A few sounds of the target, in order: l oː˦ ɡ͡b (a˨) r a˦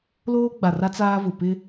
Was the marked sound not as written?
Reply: no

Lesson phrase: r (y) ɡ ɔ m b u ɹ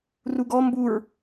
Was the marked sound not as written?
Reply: yes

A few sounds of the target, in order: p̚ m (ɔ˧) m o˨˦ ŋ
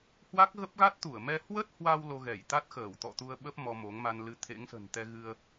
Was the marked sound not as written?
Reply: no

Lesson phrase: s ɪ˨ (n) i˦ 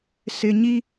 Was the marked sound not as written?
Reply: yes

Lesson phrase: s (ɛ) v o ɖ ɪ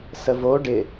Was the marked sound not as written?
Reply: yes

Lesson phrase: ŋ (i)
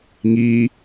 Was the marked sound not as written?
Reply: no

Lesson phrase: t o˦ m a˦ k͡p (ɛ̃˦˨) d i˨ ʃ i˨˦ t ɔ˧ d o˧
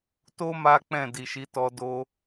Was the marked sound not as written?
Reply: no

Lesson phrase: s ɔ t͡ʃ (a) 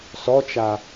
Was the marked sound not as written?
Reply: no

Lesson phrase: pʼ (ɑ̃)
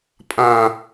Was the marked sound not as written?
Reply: yes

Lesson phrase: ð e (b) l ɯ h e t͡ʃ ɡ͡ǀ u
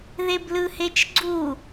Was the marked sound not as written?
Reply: no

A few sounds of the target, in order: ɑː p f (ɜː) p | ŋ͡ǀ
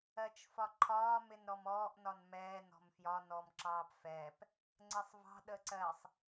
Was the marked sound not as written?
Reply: yes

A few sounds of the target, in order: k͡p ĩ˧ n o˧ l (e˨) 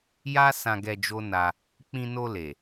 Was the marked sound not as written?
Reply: no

